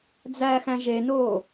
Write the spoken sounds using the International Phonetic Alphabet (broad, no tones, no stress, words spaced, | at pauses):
d͡zæxæ̃ ʒenoː